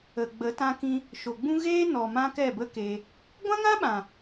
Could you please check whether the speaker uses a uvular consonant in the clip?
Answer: no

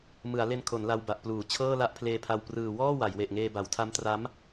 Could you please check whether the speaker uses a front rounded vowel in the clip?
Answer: no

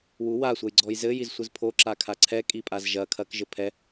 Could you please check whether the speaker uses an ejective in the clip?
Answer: yes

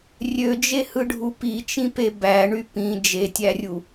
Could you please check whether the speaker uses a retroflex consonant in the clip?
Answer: yes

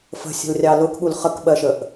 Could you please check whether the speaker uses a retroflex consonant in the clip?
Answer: no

